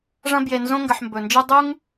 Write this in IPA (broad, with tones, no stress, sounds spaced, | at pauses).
ʐ ɐ̃˦ b j e˨ n z õ˦ ŋ ɡ ɐ˨ ħ m b ɵ˩ n d͡ʒ ɨ˦ dˤ u˥ ŋ